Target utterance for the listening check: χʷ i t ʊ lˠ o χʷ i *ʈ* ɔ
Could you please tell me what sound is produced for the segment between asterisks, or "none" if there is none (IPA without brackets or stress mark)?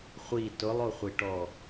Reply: ʈ